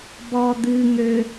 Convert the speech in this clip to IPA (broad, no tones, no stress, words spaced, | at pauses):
bɔd̪ɨŋø